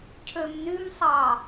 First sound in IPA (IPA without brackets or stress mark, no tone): cʰ